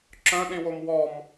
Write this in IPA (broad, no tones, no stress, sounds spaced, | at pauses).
ǁ œ̃ ɗ ĩ w o m w ɔ m